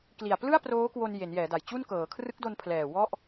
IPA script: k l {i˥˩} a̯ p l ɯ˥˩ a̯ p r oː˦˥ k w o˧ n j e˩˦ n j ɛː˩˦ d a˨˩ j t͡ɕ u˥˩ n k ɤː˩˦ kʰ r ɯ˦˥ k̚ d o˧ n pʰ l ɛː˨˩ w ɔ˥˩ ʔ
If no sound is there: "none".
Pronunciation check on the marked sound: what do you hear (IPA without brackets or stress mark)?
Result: i˨˩